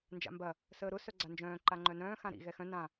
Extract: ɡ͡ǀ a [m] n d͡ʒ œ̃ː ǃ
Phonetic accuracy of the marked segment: incorrect: none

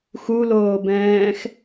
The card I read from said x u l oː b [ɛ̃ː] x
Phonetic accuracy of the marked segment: correct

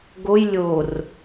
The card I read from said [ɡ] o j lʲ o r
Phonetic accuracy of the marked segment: correct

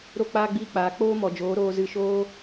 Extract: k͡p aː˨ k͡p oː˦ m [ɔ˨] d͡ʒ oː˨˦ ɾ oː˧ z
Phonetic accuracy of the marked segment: correct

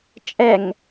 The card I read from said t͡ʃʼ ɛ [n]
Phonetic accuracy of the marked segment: incorrect: ŋ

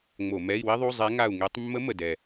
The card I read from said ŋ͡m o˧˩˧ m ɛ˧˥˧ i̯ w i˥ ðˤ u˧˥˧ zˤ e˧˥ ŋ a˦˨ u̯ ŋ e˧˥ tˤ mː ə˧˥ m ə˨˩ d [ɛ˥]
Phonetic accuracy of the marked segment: incorrect: ɛ˨˩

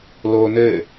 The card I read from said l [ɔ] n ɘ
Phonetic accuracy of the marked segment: incorrect: o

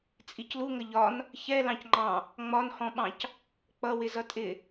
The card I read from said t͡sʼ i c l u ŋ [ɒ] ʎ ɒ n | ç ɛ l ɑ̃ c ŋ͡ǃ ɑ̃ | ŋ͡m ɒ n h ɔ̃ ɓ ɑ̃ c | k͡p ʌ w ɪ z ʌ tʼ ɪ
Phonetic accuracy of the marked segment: incorrect: ʌ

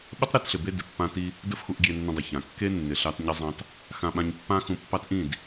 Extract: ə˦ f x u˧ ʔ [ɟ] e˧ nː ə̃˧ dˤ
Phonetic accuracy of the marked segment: incorrect: ɡʲ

